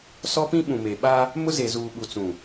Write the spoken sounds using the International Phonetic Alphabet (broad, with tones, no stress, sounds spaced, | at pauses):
s ɔ˦ p ĩ˦ ɓ ũ˨ m e˨ ɓ a˦ | m ʊ˦ z e˨ z uː˨ ɓ u˨ t͡s ũ˨